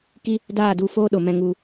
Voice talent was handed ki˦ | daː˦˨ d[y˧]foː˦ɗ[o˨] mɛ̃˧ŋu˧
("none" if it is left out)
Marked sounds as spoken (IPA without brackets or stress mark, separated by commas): u˧, o˨